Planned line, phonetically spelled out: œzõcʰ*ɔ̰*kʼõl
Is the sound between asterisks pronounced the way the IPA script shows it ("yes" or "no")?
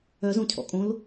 yes